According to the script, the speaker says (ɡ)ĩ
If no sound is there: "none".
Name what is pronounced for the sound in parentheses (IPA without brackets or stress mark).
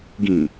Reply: ɡ